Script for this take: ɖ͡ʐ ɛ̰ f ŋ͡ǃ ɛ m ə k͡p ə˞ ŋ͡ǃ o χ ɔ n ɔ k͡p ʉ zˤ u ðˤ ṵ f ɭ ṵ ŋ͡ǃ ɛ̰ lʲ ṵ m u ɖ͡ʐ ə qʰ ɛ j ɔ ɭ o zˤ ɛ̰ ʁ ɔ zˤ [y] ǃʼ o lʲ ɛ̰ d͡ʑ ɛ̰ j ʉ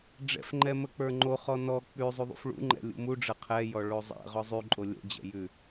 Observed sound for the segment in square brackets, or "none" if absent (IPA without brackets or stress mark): y